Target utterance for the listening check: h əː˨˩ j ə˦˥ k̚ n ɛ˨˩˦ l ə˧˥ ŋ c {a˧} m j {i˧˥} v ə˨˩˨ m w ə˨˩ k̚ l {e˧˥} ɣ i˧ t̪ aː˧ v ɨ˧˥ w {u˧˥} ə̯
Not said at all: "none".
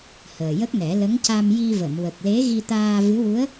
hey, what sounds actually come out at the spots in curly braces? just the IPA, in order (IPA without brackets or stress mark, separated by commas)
a˧, i˧, e˧˥, u˧˥